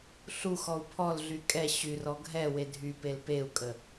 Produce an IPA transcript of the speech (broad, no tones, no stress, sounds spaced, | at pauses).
ɬ u x ɔ u̯ pʰ ɔ l ɮ y kʼ ɛ ɕ y r ɔ ɡʱ ɛ w e dʱ y p e l p e u̯ kʼ ə